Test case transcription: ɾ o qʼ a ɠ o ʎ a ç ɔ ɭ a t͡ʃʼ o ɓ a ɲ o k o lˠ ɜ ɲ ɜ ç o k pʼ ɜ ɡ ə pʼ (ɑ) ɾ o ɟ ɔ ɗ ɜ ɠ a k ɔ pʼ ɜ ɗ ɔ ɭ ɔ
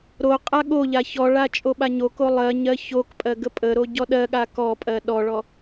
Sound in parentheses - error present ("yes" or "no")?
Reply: yes